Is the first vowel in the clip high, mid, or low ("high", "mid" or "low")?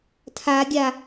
low